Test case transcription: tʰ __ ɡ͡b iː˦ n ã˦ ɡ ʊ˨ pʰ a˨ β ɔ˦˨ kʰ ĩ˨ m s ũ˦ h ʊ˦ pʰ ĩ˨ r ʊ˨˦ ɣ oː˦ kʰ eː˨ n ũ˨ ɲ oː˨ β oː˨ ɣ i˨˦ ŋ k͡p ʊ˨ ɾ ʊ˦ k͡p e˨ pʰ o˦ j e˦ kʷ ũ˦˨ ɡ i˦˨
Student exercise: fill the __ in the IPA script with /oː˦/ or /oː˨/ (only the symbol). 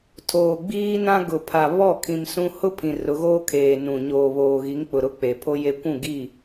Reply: oː˨